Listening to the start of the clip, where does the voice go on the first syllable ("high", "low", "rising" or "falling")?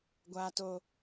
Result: low